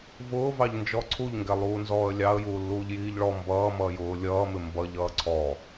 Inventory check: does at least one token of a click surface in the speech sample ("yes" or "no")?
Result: yes